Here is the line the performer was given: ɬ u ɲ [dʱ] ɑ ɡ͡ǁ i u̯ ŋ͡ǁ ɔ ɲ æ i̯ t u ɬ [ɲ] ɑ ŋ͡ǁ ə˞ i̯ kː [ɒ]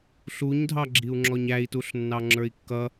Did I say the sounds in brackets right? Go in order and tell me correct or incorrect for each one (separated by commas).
correct, incorrect, incorrect